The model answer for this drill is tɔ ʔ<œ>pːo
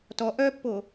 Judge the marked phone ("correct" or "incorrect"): correct